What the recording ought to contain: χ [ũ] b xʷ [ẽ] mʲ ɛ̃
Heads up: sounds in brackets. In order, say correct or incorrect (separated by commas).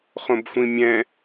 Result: incorrect, incorrect